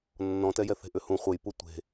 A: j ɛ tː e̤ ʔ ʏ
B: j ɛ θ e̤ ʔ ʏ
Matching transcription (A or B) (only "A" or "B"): B